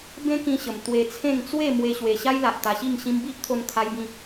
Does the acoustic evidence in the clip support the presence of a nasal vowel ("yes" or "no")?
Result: yes